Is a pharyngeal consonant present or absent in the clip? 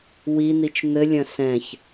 absent